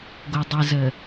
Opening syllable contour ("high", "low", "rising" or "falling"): low